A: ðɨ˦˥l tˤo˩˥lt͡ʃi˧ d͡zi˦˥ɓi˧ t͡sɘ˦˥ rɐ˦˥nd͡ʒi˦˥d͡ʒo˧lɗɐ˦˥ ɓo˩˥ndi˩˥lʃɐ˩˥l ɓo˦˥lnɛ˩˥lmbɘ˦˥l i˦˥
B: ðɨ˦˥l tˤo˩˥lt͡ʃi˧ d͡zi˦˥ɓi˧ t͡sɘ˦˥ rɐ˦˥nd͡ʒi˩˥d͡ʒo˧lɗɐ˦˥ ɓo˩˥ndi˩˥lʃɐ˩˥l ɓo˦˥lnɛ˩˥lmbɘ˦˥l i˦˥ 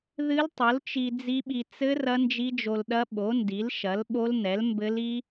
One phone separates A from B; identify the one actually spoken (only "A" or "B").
A